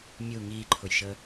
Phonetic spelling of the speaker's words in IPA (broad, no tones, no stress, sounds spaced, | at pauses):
mʲ u ŋ iː ǃʰ ʊ j ʃ əː